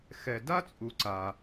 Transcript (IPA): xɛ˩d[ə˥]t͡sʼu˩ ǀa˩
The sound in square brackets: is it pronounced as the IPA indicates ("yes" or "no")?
no